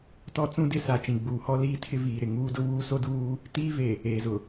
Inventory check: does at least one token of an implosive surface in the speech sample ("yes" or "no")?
no